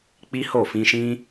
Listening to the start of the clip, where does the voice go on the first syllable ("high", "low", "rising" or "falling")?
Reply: high